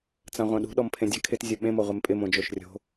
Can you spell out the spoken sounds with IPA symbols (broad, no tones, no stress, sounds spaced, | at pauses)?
t͡s ã ʁʷ ã ɗ ṳ ɗ ɔ m pʰ ẽ dʲ a kʰ ɪ t zʲ ʊ ɓ ẽ m o ʁʷ e m pʼ ɪ m õ d͡ʒ o ʃ rʲ o̤